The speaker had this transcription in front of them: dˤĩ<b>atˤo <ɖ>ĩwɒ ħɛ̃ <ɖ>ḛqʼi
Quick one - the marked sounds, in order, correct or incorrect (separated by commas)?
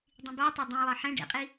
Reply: correct, incorrect, correct